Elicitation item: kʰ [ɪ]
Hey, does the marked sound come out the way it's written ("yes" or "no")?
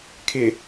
yes